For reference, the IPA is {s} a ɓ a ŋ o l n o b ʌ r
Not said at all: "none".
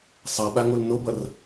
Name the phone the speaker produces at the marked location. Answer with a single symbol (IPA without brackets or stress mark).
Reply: sˤ